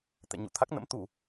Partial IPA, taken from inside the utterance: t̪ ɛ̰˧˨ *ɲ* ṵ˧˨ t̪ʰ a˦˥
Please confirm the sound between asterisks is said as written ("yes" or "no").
yes